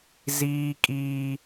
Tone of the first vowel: high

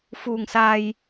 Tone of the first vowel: low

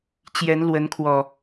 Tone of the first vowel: rising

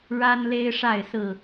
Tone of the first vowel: high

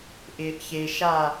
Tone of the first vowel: low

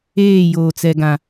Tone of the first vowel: falling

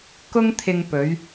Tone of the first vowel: high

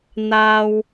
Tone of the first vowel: high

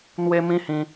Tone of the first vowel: high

